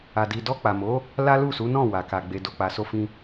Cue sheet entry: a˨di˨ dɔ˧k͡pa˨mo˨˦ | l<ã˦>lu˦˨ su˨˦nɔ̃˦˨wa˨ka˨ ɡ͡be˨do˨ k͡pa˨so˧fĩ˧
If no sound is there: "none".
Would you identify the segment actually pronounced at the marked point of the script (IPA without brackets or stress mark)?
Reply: a˦